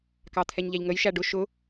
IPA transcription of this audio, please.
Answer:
k ɑ t̪ʰ ɛ ɲ ʎ æ ʎ ŋ ə j ʃ æ ɖ ʊ ʃ ʊ

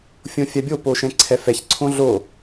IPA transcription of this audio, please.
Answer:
fʲ õ fʲ a bʲ o p o ʃ ɛ̃ ǀʰ ɛ f ɛ ç ǀʰ õ ɮ o

